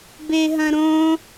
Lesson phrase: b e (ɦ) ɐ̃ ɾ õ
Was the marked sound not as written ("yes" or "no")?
no